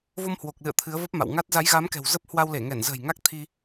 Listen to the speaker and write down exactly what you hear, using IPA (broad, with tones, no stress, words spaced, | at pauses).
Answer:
vo˧mhwo˨˩k̚lɨ̰˧˨ə̯ t̪ʰɨ˨˦ə̯və˦˥p̚ma̰˧˨wŋa˦˥t̚ za˨˦jɣa˨˦mkɛ̤˨˩w zə˦˥p̚hwa˧w le˧˩ŋɛ˧˩nzə̤ː˨˩j ŋa˦˥k̚t̪ʰi˧